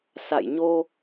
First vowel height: low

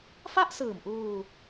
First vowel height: low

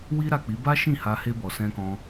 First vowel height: high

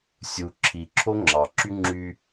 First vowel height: high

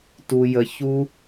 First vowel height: high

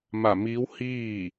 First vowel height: low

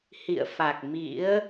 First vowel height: high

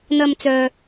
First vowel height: low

